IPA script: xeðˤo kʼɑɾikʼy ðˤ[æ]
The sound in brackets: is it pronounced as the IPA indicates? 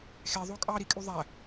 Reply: yes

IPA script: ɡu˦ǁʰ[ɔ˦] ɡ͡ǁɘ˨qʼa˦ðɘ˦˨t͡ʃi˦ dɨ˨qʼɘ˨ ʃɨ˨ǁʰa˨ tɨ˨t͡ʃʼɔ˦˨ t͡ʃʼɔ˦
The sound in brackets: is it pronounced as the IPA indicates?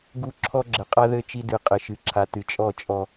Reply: yes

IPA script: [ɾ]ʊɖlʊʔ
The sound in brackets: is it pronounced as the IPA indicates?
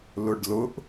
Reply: no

